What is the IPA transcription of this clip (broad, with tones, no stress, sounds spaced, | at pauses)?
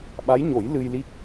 ɓ a˧˥ j ɲ o˨˩˦ j l ɨ˧ j l i˦˥ k̚